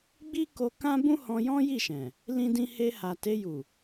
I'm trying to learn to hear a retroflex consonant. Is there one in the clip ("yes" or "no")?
no